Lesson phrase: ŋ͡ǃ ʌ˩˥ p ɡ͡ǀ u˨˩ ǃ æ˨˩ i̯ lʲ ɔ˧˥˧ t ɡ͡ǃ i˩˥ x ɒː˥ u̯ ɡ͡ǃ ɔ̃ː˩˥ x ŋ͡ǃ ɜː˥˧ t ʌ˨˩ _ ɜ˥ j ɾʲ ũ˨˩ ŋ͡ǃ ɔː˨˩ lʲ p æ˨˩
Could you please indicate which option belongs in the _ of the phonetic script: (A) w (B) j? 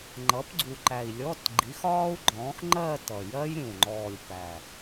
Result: B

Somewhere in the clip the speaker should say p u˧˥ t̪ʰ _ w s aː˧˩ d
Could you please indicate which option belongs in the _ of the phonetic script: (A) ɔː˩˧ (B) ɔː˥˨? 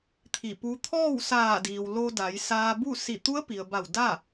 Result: B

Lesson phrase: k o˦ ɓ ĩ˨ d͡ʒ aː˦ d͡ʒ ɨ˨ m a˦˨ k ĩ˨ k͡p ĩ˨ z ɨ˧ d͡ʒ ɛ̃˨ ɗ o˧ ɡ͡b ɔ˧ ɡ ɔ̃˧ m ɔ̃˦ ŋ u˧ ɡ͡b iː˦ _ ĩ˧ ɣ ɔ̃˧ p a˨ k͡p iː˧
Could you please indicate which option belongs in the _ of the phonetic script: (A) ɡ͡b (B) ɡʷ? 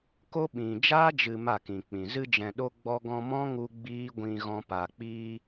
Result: B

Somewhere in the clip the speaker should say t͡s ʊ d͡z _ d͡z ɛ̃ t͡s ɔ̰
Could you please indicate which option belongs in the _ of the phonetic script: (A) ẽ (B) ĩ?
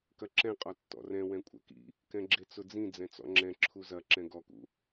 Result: B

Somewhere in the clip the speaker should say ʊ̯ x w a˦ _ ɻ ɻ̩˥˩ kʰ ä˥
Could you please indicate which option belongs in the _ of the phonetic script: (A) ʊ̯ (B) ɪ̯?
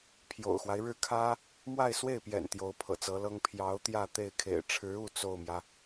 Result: B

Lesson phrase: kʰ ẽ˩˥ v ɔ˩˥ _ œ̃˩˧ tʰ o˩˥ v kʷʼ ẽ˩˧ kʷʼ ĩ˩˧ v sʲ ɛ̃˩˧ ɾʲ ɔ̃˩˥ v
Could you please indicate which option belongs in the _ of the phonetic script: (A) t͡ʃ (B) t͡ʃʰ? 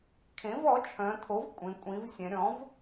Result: B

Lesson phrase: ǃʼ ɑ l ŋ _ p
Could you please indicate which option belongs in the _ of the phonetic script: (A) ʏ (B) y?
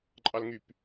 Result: B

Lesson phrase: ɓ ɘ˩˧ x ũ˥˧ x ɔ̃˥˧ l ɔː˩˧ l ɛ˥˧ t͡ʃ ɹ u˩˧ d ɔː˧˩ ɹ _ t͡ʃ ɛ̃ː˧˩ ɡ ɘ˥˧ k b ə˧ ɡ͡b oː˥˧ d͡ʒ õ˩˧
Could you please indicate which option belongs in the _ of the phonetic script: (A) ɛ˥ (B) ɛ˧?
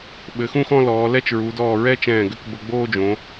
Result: A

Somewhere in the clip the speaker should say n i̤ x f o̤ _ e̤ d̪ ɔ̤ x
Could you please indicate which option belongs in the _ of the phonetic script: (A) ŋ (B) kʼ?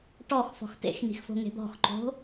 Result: A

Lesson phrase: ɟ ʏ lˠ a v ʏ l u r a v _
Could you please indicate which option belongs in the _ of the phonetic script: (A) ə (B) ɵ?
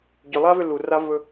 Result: B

